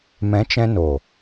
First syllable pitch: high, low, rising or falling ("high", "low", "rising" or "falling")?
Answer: rising